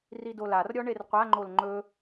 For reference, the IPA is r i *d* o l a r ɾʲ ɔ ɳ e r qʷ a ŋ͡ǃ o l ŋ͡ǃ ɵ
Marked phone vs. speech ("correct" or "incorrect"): correct